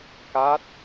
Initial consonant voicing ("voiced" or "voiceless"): voiceless